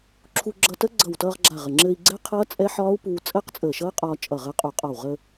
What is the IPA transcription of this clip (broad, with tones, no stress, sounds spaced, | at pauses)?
ǁʰ u˧ ɡ͡ǁ ʌ˧ t ə˦˥ ɡ͡ǀ ʌ˧˩ w t ʌː˧ ʁ ɡ͡ǁ a˧˩ ʁ ə˧˩ ŋ͡ǁ ɘ˧ i̯ ɡ͡ǀ ɛ˦˥ qʰ ʌː˦˥ t͡sʼ ɛ˦˥ ħ ɒː˦˥ u̯ p uː˧ t͡sʼ əː˦˥ q t͡sʼ əː˧˩ ʃ ʌː˦˥ qʼ ɒː˧ t͡ʃʼ ʌ˧˩ ʁ əː˧ qʼ u˧˩ qʼ ɒ˧˩ w ʁ ə˧